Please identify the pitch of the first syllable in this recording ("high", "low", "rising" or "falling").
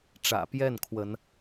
low